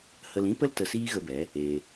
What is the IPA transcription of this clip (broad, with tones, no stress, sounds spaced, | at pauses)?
h ə˧ l ĩ˦ p ə˦ l t ə˧ s iː˦ ɣ ə˧ b ɛ˨˦ | eː˧